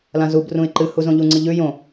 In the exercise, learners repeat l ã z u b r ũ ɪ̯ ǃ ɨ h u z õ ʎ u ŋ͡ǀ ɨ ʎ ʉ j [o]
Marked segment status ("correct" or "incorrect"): incorrect